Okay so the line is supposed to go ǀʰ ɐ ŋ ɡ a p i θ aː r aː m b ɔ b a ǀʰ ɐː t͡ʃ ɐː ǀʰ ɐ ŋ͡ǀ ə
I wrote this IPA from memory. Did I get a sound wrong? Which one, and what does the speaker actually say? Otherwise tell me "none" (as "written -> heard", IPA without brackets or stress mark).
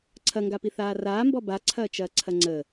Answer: none